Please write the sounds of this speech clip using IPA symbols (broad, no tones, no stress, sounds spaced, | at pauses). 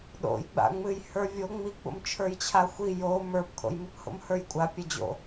ɗ o̰ j ɡ͡b a̰ ŋ͡m ɨ j h ə˞ vʲ o ŋ͡m i ɡ͡b o̰ m t͡ʃʰ ə˞ j t͡ɕʰ a xʷ i j o m ə˞ p kʰ o̰ j m ɨ p h o̰ m h ə˞ j kʷʼ a pʲ a d͡ʑ o̰